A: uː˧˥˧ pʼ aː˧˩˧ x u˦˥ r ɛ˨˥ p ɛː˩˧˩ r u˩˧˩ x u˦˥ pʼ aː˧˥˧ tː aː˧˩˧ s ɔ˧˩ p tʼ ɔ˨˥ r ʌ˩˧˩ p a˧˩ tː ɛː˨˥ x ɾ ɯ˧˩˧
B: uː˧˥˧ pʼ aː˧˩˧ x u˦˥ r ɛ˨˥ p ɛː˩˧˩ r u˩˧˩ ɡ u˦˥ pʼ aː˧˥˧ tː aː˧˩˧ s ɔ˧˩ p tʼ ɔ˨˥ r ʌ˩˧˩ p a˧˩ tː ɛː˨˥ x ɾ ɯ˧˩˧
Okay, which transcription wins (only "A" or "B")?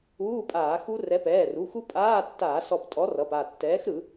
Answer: A